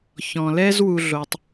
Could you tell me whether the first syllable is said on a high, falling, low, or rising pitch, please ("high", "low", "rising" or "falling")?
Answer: low